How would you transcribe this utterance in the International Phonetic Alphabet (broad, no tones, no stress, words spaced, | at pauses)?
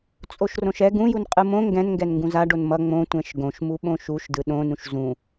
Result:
t͡sʼoʃrõʃɛ ɡũjun qʼɯmõ ŋɡɛ̃nŋɡɛn ŋɡũzaɖon mʌ ŋ͡mõ tʷɛ̃ʃɡõʃmu ɓõʃuʃdɯ ɗõnũʃ zũ